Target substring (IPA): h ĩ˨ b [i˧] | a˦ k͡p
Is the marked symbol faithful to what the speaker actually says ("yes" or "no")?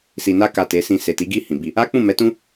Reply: yes